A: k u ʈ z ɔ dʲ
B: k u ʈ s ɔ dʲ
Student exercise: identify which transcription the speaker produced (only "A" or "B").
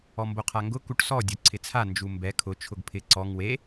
B